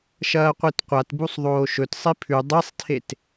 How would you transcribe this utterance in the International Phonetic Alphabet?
ʃ ɐː qʷ i t qʷ a t b u sˤ ðˤ oː ʃ ɵ t sˤ i pʰ ʉ dˤ e sˤ tʰ e t

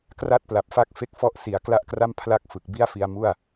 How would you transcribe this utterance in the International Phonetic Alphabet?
k r a˥˩ t̚ p l a˨˩ p̚ f a˥˩ k̚ f e˥˩ k̚ f ɔ˥˩ ʔ s i˩˦ a̯ k l a˥˩ ʔ k r a˥˩ m pʰ l a˥˩ k̚ f ɯ˨˩ k̚ b i˥˩ a̯ f i˧ a̯ m u˥˩ a̯

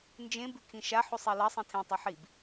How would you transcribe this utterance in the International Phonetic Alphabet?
n d͡ʒ ẽ b ʉ kʰ ĩ ʃ a ħ u sˤ e l ɐ sˤ ĩ tʰ ẽ tˤ u ħ i b

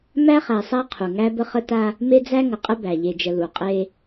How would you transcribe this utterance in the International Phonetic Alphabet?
m æ˦ χ æ˨ sˤ æ˦ qʰ u˨ ŋ æ˦ b ə˦ χ ə˦ t a˦ | m e˦ d͡z æ˦ ŋ ə˨ qʼ ə˦ b æ˨ ʎ e˨ d͡ʒ ə˨ l u˨ qʼ e˦

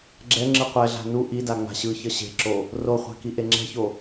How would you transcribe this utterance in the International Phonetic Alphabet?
ɡ͡ǁ ɛ ŋ͡ǁ ɯ qʷ ɛ ɮ a̤ n u ʔ i d a ŋ͡m a̤ ɕ ɯ ç ʌ ɕ e̤ ǁ o | r o χʷ a̤ k i ʔ e ŋ͡ǁ ɛ̤ ç o

